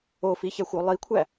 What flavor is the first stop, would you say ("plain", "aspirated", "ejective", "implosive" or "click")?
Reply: aspirated